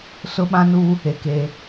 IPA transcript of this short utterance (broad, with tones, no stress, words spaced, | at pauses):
sʊ˦ɓã˦nuː˦ | e˨keː˦